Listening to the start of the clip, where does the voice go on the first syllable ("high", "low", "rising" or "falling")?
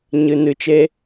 low